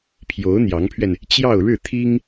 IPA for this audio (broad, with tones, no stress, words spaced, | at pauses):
pʰjo˧˥ʊ̯ n̪jɑ˧˥ŋpʰɥɛ˧n | t͡ɕjɑ˥˧ʊ̯ ɻɻ̩˥˩t̪ʰi˥ŋ